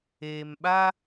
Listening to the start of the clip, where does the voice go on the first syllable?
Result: low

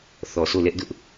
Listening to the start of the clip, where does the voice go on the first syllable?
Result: low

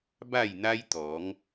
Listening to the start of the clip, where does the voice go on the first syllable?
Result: falling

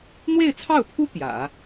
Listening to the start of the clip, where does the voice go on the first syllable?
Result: falling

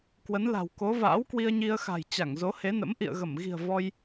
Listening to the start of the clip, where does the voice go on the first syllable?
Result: rising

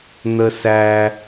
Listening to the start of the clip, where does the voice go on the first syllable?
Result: high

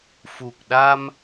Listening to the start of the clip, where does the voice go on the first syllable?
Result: low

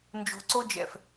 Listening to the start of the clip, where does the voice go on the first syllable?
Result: low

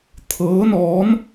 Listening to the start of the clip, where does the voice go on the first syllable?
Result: rising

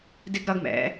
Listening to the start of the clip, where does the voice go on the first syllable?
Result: high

